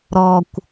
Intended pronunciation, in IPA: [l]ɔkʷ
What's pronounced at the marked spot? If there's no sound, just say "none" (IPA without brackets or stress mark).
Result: ɾ